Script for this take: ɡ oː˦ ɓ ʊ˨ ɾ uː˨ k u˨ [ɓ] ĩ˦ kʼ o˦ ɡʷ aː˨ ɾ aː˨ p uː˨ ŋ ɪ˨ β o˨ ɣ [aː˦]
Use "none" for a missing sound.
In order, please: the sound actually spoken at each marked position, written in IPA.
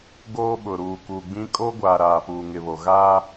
ɡ͡b, aː˦

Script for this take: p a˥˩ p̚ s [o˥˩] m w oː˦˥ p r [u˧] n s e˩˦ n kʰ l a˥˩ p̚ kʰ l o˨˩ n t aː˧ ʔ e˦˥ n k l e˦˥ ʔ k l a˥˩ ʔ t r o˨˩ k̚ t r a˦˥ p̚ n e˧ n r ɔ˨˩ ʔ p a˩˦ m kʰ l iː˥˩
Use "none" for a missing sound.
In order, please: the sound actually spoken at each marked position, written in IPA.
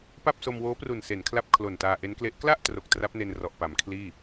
o˧, u˨˩

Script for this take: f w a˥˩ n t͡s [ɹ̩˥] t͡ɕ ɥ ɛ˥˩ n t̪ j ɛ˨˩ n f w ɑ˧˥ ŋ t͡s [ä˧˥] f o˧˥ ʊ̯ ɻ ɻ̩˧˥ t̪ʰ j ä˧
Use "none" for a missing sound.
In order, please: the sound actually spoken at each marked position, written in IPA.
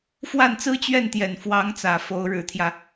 ɹ̩˥, ä˨˩

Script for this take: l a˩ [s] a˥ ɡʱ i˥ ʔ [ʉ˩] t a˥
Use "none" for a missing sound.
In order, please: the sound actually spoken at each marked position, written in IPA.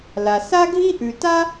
s, ʉ˩

